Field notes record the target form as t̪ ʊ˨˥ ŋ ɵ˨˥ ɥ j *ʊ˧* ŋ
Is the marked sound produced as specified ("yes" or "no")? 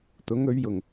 no